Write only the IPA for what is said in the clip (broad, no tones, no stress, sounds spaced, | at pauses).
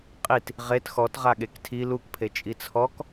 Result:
qʼ i t | ʁ e t x ɔ t ʁ a ɠ e k tʰ i l u k pʰ e t͡ʃʼ i t͡sʰ ɔ k